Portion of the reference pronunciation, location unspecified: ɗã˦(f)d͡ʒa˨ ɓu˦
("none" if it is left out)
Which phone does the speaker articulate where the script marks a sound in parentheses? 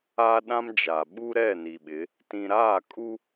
m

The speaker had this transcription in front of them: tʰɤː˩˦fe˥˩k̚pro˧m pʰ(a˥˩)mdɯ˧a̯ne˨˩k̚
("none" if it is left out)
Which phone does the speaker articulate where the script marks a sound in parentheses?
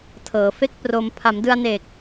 a˩˦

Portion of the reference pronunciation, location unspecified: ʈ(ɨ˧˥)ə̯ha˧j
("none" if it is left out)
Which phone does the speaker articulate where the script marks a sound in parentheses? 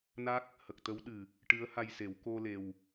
ɨ˧˥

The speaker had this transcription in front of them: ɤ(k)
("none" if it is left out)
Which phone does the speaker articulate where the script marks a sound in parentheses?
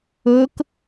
k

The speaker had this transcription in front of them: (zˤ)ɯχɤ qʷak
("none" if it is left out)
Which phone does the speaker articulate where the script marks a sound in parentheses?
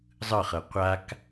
zˤ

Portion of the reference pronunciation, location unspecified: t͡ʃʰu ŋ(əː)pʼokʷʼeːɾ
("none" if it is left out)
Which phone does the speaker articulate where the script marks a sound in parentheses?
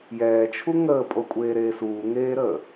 əː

